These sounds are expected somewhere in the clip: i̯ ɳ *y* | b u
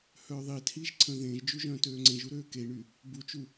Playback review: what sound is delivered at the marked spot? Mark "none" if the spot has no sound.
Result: y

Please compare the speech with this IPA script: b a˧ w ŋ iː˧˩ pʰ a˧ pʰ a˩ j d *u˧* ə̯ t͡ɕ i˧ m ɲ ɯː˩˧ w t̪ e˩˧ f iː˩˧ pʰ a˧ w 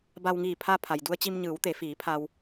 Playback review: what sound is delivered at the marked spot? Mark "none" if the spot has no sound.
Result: u˧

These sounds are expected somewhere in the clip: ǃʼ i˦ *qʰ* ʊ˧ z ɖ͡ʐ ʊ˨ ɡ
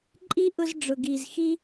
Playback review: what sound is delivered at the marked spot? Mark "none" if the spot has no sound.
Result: ʔ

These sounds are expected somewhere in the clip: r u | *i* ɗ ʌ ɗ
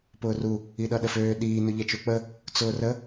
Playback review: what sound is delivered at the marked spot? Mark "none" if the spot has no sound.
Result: i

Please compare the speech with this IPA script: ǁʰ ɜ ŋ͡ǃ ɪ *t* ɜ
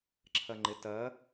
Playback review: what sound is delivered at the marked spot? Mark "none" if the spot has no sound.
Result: t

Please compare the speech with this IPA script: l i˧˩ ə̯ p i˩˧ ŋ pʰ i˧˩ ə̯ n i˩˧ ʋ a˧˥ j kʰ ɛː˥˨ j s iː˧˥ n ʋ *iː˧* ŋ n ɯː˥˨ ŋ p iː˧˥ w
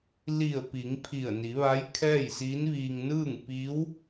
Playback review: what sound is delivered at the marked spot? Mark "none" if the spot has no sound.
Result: iː˧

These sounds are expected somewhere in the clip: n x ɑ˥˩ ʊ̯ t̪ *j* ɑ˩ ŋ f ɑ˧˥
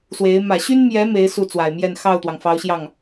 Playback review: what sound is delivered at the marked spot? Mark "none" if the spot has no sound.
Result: w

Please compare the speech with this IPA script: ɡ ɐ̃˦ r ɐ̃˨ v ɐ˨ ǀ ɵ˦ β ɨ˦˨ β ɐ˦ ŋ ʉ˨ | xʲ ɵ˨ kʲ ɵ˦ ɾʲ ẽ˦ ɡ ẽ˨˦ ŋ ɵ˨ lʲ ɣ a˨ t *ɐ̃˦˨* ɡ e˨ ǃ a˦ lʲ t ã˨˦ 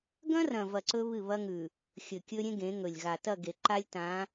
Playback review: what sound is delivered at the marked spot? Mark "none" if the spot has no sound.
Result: ɐ˦˨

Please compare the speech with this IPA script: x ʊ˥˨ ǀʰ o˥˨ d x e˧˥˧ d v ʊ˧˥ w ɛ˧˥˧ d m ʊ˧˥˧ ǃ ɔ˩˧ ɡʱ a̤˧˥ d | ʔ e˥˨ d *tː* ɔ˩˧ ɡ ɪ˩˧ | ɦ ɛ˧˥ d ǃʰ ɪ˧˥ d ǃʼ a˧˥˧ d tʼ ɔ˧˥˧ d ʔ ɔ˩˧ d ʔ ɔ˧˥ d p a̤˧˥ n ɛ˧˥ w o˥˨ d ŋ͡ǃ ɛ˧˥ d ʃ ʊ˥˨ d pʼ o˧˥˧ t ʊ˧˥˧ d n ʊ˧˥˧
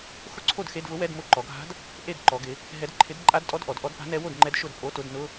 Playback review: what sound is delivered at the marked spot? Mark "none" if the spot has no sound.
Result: ǃ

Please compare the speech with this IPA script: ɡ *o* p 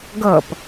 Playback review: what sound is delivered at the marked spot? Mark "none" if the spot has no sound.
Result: ɤ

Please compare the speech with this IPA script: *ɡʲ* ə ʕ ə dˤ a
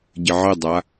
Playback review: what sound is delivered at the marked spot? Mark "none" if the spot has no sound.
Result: ɟ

